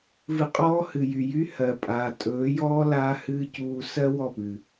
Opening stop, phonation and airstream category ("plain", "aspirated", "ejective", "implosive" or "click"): ejective